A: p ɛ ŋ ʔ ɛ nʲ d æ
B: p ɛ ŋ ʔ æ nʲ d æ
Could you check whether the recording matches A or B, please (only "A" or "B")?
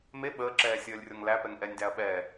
A